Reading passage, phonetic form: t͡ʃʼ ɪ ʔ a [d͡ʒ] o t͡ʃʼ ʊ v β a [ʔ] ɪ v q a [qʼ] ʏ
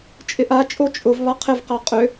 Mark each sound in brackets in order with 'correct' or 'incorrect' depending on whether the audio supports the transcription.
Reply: incorrect: t͡ʃʼ, incorrect: qʰ, correct

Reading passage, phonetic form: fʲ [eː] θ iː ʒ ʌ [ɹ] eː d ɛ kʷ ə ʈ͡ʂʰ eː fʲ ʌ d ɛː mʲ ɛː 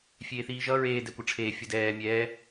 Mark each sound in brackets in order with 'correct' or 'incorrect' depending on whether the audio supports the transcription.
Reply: correct, correct

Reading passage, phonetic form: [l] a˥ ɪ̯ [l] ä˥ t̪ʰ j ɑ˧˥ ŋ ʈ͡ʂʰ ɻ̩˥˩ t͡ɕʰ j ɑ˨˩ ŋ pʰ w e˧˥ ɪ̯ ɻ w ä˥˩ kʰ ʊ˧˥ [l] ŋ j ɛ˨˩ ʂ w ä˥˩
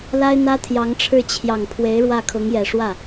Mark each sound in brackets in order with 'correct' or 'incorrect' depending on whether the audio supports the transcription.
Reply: correct, incorrect: n̪, incorrect: none

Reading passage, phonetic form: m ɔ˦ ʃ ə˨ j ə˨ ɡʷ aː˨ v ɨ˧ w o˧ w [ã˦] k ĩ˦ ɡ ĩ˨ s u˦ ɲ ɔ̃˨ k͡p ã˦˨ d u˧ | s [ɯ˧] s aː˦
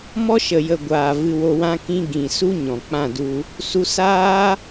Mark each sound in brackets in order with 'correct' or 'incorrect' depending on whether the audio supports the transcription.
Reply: correct, incorrect: u˧

